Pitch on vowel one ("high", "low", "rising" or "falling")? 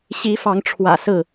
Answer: rising